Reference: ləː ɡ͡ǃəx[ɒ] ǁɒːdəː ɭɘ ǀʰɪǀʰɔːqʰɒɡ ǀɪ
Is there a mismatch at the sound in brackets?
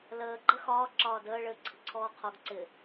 yes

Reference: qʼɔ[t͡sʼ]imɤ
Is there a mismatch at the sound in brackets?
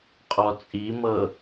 no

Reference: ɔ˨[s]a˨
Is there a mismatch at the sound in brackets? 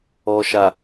yes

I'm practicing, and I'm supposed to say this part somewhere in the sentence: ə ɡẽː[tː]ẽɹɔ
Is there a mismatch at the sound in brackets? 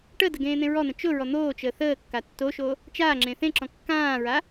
yes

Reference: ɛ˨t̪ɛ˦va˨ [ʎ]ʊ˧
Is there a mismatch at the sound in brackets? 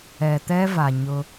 yes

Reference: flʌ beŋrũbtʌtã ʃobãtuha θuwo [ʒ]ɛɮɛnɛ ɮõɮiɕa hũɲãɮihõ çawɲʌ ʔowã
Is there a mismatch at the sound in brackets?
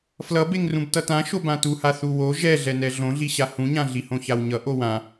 no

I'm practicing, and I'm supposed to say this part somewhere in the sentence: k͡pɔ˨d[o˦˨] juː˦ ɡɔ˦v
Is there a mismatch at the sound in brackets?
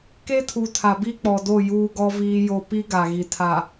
no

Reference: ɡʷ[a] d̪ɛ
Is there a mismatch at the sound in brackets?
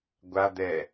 no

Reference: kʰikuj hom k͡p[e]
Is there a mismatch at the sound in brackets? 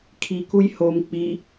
yes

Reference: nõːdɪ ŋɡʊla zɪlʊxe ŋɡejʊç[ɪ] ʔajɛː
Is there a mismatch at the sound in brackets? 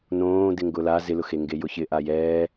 no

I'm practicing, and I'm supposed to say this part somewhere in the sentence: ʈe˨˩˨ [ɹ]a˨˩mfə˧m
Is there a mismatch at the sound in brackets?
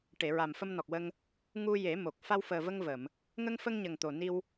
no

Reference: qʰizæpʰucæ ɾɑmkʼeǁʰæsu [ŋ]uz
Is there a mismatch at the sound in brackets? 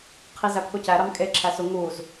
no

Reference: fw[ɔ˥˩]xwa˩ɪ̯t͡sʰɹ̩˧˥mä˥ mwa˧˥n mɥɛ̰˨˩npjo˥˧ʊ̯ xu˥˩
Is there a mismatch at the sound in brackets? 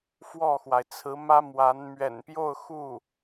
no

